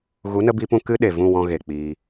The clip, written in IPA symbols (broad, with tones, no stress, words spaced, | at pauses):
ɣu˨˦nə˧bi˧pũ˧ kɨ˦ɗe˨vũ˦˨ wɔ̃˧ɣe˨ k͡piː˧